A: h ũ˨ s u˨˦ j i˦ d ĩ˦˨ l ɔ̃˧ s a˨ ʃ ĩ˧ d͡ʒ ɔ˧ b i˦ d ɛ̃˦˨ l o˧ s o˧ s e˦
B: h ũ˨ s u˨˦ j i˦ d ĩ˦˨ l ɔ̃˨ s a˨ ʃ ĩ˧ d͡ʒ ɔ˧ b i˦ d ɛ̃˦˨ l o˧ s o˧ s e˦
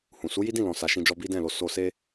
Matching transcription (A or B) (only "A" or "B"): B